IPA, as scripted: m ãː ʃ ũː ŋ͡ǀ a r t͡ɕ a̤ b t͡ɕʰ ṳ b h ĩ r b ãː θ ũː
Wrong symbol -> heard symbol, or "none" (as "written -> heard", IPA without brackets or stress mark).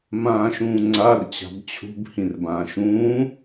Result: θ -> ʃ